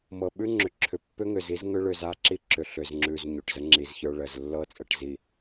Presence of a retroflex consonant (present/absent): present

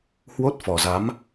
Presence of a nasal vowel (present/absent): absent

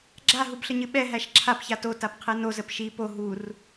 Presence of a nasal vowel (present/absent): absent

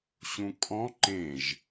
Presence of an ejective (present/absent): present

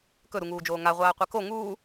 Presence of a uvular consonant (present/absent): present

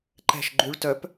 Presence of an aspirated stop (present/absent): absent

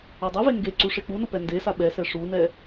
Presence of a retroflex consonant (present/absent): present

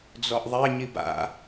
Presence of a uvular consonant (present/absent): absent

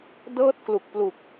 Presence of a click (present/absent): absent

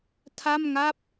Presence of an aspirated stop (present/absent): present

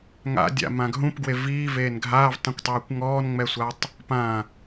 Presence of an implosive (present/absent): absent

